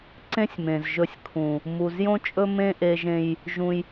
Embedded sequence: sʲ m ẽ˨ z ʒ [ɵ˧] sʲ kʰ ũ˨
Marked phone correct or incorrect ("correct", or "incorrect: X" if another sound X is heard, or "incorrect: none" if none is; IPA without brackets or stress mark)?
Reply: correct